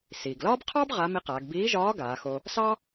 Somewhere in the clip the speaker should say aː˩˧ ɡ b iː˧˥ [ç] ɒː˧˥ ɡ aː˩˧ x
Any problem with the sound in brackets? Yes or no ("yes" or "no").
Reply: yes